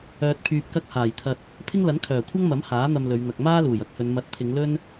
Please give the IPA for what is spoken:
œː˧ t̚ pʰ yː˧ p̚ k ɐ˥ k̚ h aː˨˩ j t̪ʰ ɐ˧ t̚ | pʰ ɪ˥ ŋ l ɐ˨˥ n kʰ œː˨˩ kʷʰ ɐ˥ ŋ m ɐ˨˥ m h aː˨˥ n̪ ɐ˧ m l ɵ˨˧ ɥ n̪ ɐ˨ k̚ m aː˥ l uː˨˩ j ɐ˥ k̚ h ɵ˨˧ n m ɐ˨˥ t̚ t̪ʰ ɪ˨˧ ŋ l ɵ˥ n

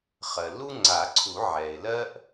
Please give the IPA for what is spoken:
χ ɜ˩ l u˥ ŋ͡ǀ a˨˩˦ ǀʰ u˨˩˦ ʕ ɛ˩ ɪ̯ l ɜ˥ ʔ

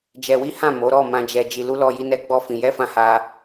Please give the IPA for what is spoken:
d͡ʒ ɛ˧ w i˦ h ã˦˨ m o˨˦ ɾ ɔ˦˨ m ã˧ d͡ʒ ɛ˧ d͡ʒ i˧ l u˦ l ɔ˦ j i˦ n ɛ˦ ɡ͡b ɔ˦ f ĩ˧ j ɛ˦ f ã˦˨ h a˧

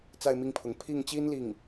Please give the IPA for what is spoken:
t͡s a˥˧ ɪ̯ m i˥˩ ŋ pʰ ʊ˧˥ ŋ pʰ i˥˩ ŋ t͡ɕ i˥ n l i˥˩ ŋ

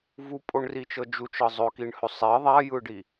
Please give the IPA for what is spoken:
v u pʼ o ɳ r i t͡ʃ ɤ d͡ʒ u t͡ʃ ɤ zˤ ɵ k i ɳ h ɵ sˤ ɛ ðˤ a j ɯ ɖ i

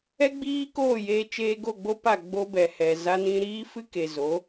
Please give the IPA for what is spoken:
ɛ˦ ɡ͡b iː˦ k oː˦˨ j eː˧ t͡ʃ eː˧ ɡ o˦˨ ɡ͡b o˦ p a˦˨ ɡ͡b o˦ b ɛ˨ h ɛ˨ z a˦ n ĩ˦ ɾ iː˦ f ɨ˦ k e˨ z o˨˦

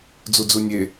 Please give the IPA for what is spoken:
d͡z u d͡z u nʲ e

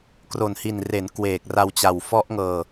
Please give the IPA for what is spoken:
k r o˨˩ n h i˨˩ n r e˩˦ n k w eː˨˩ k̚ r a˧ w t͡ɕ a˨˩ w f ɔ˦˥ ʔ ŋ ɤː˧

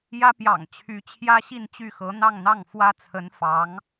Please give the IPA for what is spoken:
j ä˥ p j ɑ̰˨˩ ŋ t͡ɕʰ y˧˥ t͡ɕʰ j ä˥ ɕ i˥˧ n t͡ɕ y˥˩ x ɤ˧˥ n̪ ɑ˥˧ ŋ n̪ ɑ˥˩ ŋ f w ä˥ t͡sʰ ə˧˥ n f ɑ˧˥ ŋ

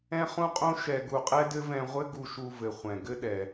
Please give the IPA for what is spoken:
ɛ̃˥ χ ũ˥ qʼ õ˥ ʃ ɛ˧ ɡ u˧ qʼ ɛ˥ d ɘ˥ v ɛ̃˧ ʁʷ ɘ˥ ɡ u˧ ʃ u˧ v ɘ˩ χʷ ɛ̃˩ ɡ ɘ˥ ɗ ɛ˩

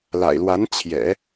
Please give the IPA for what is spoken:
l a̰˨˩ ɪ̯ l w a˧˥ n t͡ɕʰ j ɛ̰˨˩˦

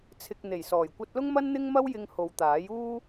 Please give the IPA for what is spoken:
t͡sʰ ɪ˧ k̚ n̪ e˨˩ j s ɔː˨˩ j kʷ ɐ˧ t̚ l ʊ˥ ŋ m ɐ˥ n n̪ ɪ˥ ŋ m ɐ˥ w j ɪ˧ ŋ h o˨˧ w t̪ aː˨˥ j uː˥

